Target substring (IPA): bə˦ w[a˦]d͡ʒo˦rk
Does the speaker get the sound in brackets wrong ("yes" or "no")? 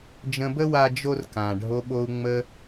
no